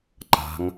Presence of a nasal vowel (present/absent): absent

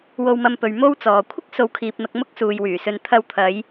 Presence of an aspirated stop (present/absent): present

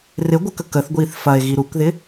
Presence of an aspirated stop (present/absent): absent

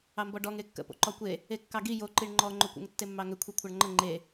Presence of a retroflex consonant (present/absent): present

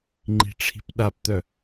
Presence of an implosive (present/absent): present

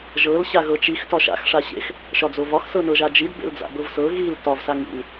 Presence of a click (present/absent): absent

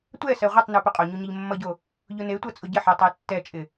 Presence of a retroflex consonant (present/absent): absent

